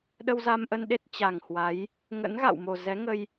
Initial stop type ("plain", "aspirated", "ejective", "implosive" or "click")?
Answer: implosive